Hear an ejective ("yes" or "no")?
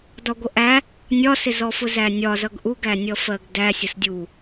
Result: no